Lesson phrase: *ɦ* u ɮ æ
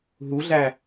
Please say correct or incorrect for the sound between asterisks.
correct